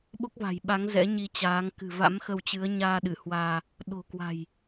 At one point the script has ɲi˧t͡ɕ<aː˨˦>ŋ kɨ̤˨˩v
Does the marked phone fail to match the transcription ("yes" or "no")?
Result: no